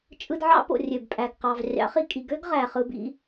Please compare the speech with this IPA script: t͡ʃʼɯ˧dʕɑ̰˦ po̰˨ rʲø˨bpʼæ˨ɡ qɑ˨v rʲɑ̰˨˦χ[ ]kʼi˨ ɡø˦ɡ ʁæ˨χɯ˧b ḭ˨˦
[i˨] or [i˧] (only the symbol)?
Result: i˨